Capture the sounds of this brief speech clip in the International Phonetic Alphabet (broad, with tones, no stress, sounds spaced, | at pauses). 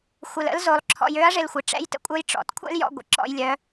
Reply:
xʷ ɪ˧ l ə̰˧˥ l z o˩˧ lˠ ǁʰ ɔ̰˧ j ø˧˥ ɐ̯ ʐ ɪ˧ l xʷ ɪ˩ ʈ͡ʂ ɛ̰˧˥ j t ə̰˧˥ kʷʼ œ˧˥ j ʈ͡ʂ ɔ̰˩˧ t kʷʰ ɛ̰˥ l j ɔ̰˧ ɡʷ ə̰˩ ǁ ɔ̰˧ j lʲ œ˩˧